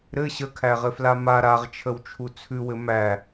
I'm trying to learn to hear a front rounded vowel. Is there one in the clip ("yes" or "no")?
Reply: no